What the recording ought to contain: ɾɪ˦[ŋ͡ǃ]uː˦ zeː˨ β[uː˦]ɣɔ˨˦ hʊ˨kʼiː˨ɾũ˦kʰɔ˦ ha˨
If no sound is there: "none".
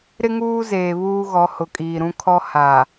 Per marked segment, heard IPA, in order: ŋ, uː˦

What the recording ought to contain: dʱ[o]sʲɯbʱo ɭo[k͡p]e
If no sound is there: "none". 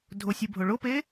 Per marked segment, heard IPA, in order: o, p

